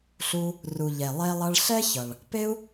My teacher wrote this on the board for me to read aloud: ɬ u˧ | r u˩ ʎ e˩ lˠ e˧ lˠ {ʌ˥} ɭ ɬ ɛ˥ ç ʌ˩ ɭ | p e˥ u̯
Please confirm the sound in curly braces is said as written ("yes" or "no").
no